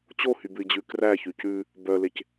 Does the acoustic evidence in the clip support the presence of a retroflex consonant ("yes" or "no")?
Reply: no